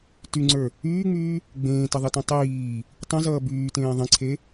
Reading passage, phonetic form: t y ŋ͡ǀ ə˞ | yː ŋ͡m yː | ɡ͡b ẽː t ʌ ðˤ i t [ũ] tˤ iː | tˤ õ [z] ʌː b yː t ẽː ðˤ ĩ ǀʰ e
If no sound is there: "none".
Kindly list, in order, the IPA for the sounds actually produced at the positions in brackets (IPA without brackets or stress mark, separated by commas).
õ, z